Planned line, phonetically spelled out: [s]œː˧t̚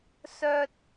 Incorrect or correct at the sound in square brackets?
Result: correct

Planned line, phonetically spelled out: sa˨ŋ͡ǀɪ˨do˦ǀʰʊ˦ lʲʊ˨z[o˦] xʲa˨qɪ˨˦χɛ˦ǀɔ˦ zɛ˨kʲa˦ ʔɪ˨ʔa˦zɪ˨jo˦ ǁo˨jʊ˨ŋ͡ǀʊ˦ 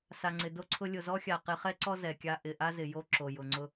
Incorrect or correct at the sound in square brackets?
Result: incorrect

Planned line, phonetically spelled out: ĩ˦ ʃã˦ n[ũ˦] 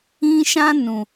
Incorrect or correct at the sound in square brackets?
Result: incorrect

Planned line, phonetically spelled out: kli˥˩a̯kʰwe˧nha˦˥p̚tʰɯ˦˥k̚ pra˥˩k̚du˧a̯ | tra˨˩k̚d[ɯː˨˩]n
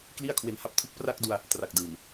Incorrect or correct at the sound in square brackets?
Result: correct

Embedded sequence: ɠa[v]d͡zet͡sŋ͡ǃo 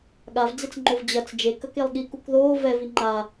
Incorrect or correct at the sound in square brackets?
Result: correct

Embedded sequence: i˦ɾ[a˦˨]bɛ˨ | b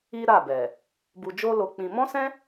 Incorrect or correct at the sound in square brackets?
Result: correct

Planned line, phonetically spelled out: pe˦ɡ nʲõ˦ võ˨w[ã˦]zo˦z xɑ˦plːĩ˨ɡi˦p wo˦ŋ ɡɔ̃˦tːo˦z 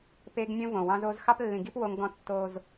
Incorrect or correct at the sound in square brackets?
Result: incorrect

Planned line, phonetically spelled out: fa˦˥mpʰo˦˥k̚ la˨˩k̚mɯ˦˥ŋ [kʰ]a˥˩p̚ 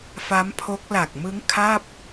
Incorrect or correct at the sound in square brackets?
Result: correct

